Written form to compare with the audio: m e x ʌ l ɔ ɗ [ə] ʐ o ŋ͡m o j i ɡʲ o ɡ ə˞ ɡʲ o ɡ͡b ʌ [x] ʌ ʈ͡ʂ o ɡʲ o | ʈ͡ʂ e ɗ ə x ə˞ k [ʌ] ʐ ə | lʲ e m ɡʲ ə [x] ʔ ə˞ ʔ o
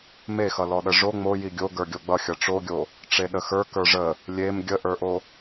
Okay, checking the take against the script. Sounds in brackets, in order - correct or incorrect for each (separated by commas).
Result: correct, incorrect, incorrect, incorrect